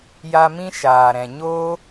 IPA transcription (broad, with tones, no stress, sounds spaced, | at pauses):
j a˧ m ĩ˦ ʃ aː˨ ɾ ɛ̃˨ ɲ oː˦